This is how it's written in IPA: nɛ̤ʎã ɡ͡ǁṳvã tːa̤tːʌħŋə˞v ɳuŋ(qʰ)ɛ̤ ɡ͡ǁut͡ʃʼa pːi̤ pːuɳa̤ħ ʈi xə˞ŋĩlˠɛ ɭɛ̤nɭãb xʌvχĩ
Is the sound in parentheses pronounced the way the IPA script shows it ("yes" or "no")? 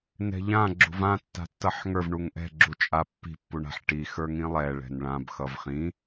no